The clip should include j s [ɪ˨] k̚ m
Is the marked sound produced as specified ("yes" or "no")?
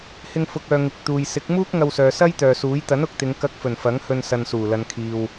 no